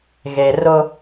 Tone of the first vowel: low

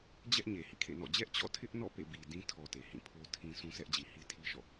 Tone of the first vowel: high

